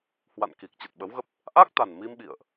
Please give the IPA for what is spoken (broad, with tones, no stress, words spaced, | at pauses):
hwa̰˧˨n ki˨˩k̚t͡ɕə˨˩t̚ɓə˨˦wɣə˦˥p̚ | ʔa˦˥k̚t̪a˨˩n mi˧mɓḭ˧˨ə̯ʔ